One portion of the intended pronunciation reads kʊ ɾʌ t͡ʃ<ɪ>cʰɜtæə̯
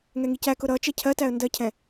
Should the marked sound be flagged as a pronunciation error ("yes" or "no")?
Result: yes